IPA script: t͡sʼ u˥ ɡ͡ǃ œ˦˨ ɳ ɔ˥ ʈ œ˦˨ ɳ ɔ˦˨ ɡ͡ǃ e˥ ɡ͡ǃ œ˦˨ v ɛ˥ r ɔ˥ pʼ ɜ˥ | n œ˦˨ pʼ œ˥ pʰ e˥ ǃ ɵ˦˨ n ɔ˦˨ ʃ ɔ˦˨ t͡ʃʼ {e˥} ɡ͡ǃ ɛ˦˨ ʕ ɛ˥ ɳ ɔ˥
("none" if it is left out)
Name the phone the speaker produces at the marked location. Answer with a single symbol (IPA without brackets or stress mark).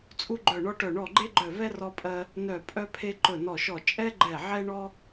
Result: ɛ˥